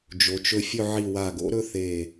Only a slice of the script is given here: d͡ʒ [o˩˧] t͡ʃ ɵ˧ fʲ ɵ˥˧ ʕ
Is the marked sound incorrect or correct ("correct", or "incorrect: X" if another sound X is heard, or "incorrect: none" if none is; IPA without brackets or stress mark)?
correct